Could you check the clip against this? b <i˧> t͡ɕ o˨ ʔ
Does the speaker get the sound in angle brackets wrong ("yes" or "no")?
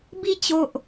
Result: no